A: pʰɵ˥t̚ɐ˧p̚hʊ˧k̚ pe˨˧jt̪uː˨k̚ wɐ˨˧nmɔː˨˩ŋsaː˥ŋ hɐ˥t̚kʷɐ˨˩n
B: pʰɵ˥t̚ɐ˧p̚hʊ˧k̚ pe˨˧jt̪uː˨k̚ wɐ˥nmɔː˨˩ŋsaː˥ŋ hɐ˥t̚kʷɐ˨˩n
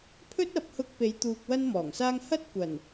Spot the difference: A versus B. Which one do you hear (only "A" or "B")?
B